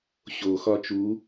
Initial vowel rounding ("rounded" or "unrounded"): rounded